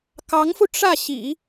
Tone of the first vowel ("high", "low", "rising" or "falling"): rising